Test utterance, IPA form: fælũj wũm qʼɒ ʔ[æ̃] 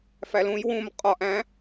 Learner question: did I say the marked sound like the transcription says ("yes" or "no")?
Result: yes